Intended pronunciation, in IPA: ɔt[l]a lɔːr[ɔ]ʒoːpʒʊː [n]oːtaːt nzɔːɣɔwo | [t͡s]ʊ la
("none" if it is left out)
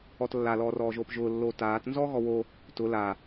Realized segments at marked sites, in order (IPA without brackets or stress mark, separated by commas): lː, ɔː, lː, t